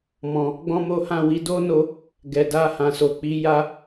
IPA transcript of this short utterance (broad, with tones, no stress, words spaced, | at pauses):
mɔ̃˨ | ɡ͡bɔ̃˦mo˦hã˦˨ wi˨˦do˦no˧ | ɡɛ˨ da˧hã˨so˨k͡pi˨˦ ja˦